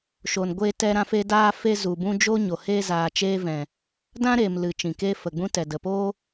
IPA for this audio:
ʃ o˨ n ɡʷ eː˧ t ɛ˧ ɾ ã˧ f e˧ d aː˧ f e˧ z u˨ b ũ˧ d͡ʒ o˦ ɲ o˨ h eː˧ z aː˨ t͡ʃ eː˧ v ɛ̃˨ | d ã˦ ɾ eː˨ m l ɨ˨ t͡ʃ ĩ˨ k eː˦ f ə˨ ɡ͡b ũ˦ t ɛ˨ d ə˨ p oː˦

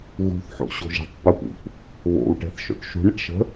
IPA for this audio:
ɣ ṳ θ ħ o̰ ɕ o̤ ʒ e̤ tˤ p ə p ṵ p | β o̰ w ʈ ɛ̤ θ ʃ o̰ ʈ ʃ ṳ ɳ ə ʈ ʃ ə̤

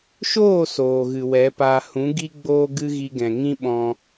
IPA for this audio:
ʃ oː˦˨ s oː˨ ɣ ɨ˨ w ɛ˨˦ p aː˧ h ũ˨˦ ɡ i˦ ɡ͡b oː˦ ɡ ɨ˦ ɣ i˧ ɡ ɛ̃˨ ŋ ĩ˦ ɓ ɔ̃˧

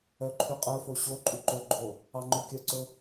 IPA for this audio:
œ ǃʰ y qʼ œ f o ɕ o ǃʼ y ǃ ɵ ɡ͡ǃ o | ɑ ŋ͡ǃ ɵ kʲ œ ǀ ɵ

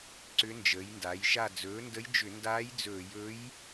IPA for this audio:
ǀ ʏ˧˥ n d͡ʒ əː˩˥ j n d a˩˥ j ʃ a˥˨ d͡z ɵː˩˥ n d ə˧˥ j d͡ʒ ʏ˧˩˧ n d aː˧˥ j d͡z ɵː˧˩˧ j ɵ˧˥ j

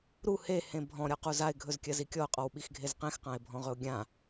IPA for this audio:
ɾ u h e h ẽ bʱ ɔ̃ ɾʲ ɔ q u z a ɪ̯ ɡʱ ɵ z kʲ ɜ z i kʲ ɔ ʊ̯ qʼ ɔ w ɓ i x ɡʱ e z q ẽ x q ã ɪ̯ bʱ ɔ̃ ʁ ɵ ʊ̯ ɡʲ ã

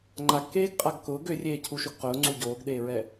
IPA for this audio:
ŋ͡ǃ a ɡ k eː ɡ qʼ a ɡ k ʊː ɡ ø rʲ eː cʰ u ʃ ʊ ɡ q ʊː ŋ͡ǀ u ɟ oː ɡ ɗ eː ɹ ɛ

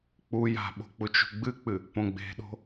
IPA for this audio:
k͡p u j a̤ ɓ o̤ k͡p u t͡ʃ ṳ ɡ͡b ɨ k͡p ɨ | p õ ɡ͡b e̤ ɗ o̤

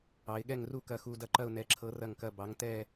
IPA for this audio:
ɑ˩˧ ɪ̯ ɠ ɛ˦˨ ŋ r u˦˨ k ɐ˨˩ x u˨˩ d ɐ˦˨ ǃ ɐ˦˨ ʊ̯ n ɛ˩˧ ǁʰ ɤ˩˧ r ɐ˨˩ ŋ k ɐ˨˩ b ɑ˩˧ ŋ t ɛ˦˨

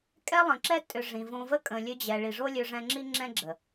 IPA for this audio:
kʼ ɛ˦ lˠ ə̃˨ ǁ ɛ˦ tʼ ʏ˨ ʐ ĩ˨ v õ˧ v ə˦ kʼ ə̃˨ lʲ ø˧ d͡ʑ ɛ˨ ɭ i˨ ʐ o˦ lʲ ø˧ ʐ ɛ̃˧ ŋ͡ǁ i˦ ŋ͡ǁ ɛ̃˦ ɡ͡ǁ ə˨

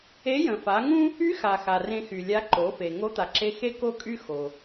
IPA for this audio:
e˧˥ j ə̃˩ f a˩˧ ŋ ũ˥ | y˧˥ x a˩ x a˩ r ẽ˧ x y˩ lʲ a˧˥ ǃ o˩˧ f e˩ ŋ o˧˥ t̪ a˩ ǁ e˧ x e˥ k o˥ kʼ y˥ x o˩

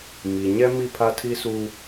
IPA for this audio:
m i˨ ɲ ɛ˦ m i˦˨ pʰ a˦ tʰ i˦ s u˦

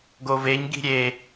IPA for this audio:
ɡ o v e ɲ ɡ i̤ ɾʲ e

